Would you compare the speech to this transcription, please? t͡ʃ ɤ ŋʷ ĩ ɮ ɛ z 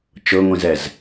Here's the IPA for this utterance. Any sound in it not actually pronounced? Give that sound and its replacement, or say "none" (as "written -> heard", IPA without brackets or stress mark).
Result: ɮ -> z